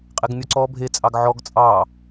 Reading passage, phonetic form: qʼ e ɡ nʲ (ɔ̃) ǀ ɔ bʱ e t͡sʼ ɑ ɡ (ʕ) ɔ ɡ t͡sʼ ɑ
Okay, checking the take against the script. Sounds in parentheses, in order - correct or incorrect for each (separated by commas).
incorrect, correct